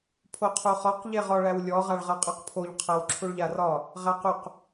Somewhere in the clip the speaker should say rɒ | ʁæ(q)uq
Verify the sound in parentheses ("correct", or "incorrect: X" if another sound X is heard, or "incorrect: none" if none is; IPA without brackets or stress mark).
correct